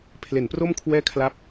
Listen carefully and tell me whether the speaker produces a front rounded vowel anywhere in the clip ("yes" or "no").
no